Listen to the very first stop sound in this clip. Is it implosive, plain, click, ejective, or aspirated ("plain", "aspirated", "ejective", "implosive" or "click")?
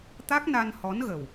plain